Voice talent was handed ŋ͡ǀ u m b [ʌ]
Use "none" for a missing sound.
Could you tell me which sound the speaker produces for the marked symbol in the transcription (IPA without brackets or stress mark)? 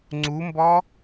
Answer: ɔ